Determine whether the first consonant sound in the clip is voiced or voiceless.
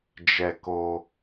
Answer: voiced